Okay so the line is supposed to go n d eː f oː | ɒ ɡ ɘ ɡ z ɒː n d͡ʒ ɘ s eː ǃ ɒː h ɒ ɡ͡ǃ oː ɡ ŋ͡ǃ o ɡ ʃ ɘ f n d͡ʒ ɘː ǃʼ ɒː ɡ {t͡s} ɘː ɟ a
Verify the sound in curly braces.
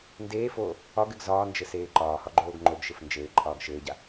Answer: incorrect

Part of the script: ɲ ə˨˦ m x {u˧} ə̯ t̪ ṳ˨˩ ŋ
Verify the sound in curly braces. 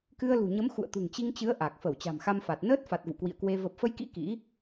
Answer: incorrect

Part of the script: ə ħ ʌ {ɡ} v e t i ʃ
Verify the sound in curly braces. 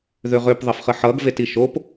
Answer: correct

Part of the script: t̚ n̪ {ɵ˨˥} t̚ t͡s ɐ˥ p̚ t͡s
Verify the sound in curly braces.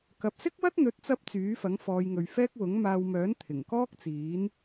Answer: correct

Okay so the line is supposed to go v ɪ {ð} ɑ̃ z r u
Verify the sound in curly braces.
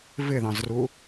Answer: correct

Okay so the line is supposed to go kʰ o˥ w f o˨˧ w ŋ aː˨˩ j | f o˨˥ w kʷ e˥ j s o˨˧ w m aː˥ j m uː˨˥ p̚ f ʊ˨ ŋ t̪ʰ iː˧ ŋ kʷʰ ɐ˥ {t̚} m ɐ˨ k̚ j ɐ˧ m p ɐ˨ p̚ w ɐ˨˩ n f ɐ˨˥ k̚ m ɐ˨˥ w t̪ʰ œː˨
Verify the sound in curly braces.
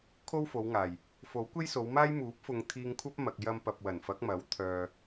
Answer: incorrect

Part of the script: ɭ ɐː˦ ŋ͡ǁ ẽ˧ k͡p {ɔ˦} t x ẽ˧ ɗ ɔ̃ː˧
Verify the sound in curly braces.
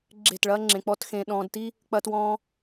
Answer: correct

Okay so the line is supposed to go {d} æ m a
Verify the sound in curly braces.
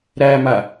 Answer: incorrect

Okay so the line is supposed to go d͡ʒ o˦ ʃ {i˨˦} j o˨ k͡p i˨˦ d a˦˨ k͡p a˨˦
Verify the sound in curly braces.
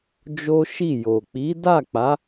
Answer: incorrect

